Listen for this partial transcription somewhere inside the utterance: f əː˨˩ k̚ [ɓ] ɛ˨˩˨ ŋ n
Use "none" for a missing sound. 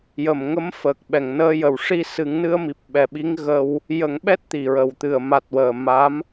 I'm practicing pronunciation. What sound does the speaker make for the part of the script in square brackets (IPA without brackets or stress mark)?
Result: ɓ